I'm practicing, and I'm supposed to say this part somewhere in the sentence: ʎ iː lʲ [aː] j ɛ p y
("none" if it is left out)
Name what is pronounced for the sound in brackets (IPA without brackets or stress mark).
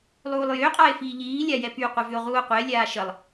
a